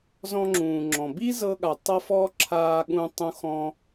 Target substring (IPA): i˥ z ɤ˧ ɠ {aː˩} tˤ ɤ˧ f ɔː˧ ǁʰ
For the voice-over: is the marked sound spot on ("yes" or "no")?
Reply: no